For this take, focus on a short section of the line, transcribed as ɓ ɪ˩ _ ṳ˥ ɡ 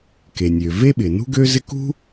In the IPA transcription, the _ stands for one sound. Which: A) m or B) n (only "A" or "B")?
B